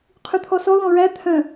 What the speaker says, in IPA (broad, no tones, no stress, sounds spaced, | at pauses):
qʰ ʉ t̪ʰ ɔ s ɔ ð ɔ̃ ɹ æ t̪ʰ œ̃